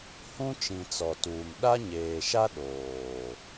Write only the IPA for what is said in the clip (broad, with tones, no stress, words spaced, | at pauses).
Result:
hũ˦t͡ʃĩ˨ t͡sɔ˨tuː˨m ɗa˦ɲeː˨ʃa˦ ɗoː˨